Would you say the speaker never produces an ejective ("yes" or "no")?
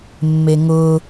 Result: yes